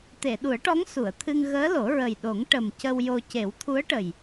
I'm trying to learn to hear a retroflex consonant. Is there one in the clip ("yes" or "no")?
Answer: yes